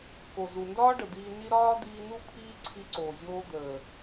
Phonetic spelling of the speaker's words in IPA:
k o˨ z u˨ n d ɒː˦ ɖ ə˨ d̪ iː˧ n i˦ ɾ ɒː˦ d̪ iː˧ n u˦ pʰ iː˦ ǀʰ i˧ ǀ oː˨ zʲ oː˧ d̪ əː˨

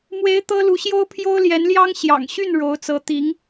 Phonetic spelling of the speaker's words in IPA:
m w e˧˥ ɪ̯ t̪ ɤ˥ l u˧˥ ɕ j o˥ ʊ̯ pʰ j o˥ ʊ̯ l j ɛ˧˥ n l j ɑ˥ ŋ ɕ j ɑ̰˨˩ ŋ ɕ y˥˩ n ɻ o˧˥ ʊ̯ t͡s ɤ˧˥ t̪ i˧˥ ŋ

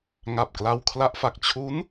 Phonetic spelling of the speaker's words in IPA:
ŋ a˨˩ p̚ k l a˧ w kʰ l a˦˥ ʔ f a˨˩ k̚ t͡ɕʰ u˦˥ n

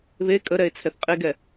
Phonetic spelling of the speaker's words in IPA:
β e kʼ ə ɾ ɛ e̯ t͡sʰ ɛ θ qʼ e ɡ ɛ

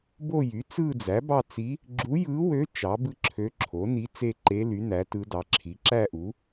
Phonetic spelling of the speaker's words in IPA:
b o˥˧ j y˩˥ t͡s ɯ˥˧ d͡z æ˩˥ b ɑ˥˧ t͡s i˧˥ | ɡ͡ǁ u˧˥ j ɯ˧˥ w ø˧˥ t͡ʃ ɑ˩˥ b ɯ˥˧ ǁʰ ø˧˥ ǁʰ o˩˥ n i˧˥ t͡s e˥˧ ǃ e˧˥ l y˩˥ n æ˩˥ t ɯ˧˥ d ɑ˩˥ ǁʰ i˩˥ ǁ æ˥˧ ʔ u˩˥

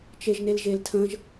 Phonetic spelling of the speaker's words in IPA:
t͡ʃ e ʒ n e l ʒ e l tʰ ə̃ ʒ

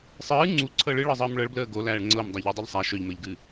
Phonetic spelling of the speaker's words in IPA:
sˤ ɨː ŋ͡ǀ u ǀʰ ɤ ɭ ɨ ɭ ɤ zˤ əː m ɭ ɤ ɭ b l əː ɡ o l æː ɭ ŋ͡ǀ ɤ m dˤ æ ʎ ɤ dˤ ɨ ʎ sˤ æ ʃ œ ʎ m əː ʎ ɡ ɨː

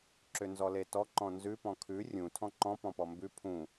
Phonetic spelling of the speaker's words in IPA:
ǁ ʏ n z ɔ l e t ɔ ǃ ɔ̃ n z ʉ p ɔ̃ kʰ ʉ rʲ ũ tʰ ɔ̃ ǃ ɔ̃ p ɔ̃ p ɔ m b ʉ pʰ ũ

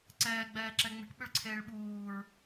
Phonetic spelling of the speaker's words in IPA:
ǀ ɛː ɡ͡b ɛː ǁ ɛ ŋ͡m e̤ ʈ ɓ ʏ ɭ ǀʰ eː ɭ ɓ uː ɹ

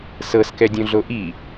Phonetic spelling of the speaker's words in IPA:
s ɤ s k ɛ dʲ õ ɮ o ʔ i

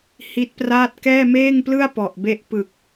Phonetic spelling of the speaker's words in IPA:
h i˦˥ t̚ p r aː˥˩ t̚ k ɛː˥˩ m eː˥˩ ŋ p l ɯ˥˩ a̯ p ɔ˨˩ ʔ b e˦˥ ʔ p ɯ˨˩ k̚

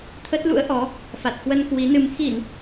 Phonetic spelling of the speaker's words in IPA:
t̪ʰ ə˦˥ t̚ l ṵ˧˥ ə̯ ʔ ɔ˨˦ | f a˨˩ t̚ k w ə˧ n k w i˨˦ n ɨ˧ m x i˧˩˨ n

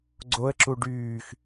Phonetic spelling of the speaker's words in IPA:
ɡ͡ǀ o ə̯ ǁ u ɖ yː x

